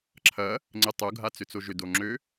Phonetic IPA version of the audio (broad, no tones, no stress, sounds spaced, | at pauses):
ǁʰ ɐ | ŋ͡ǀ ɪ tˤ o ɡʱ a t͡s ʏ t͡s o ʒ ʏ d o ŋ͡ǁ ø